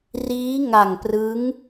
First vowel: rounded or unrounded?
unrounded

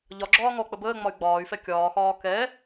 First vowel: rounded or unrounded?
rounded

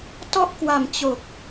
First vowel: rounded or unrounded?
rounded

